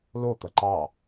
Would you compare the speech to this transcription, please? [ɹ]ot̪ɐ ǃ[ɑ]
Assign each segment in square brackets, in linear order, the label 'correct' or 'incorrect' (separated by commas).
incorrect, correct